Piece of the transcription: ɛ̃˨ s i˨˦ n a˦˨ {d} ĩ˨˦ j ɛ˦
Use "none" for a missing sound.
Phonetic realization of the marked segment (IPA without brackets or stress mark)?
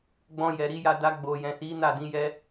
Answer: d